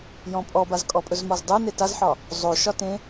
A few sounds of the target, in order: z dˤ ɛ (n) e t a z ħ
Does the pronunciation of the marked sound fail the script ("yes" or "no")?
no